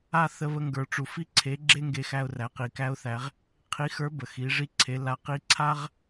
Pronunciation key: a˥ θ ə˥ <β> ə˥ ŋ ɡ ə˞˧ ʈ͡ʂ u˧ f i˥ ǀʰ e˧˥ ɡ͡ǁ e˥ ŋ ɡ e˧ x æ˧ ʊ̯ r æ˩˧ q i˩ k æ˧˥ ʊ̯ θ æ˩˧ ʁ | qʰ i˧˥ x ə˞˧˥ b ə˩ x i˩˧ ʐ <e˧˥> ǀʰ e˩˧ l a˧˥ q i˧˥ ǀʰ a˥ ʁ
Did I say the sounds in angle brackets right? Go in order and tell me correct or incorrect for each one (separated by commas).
correct, incorrect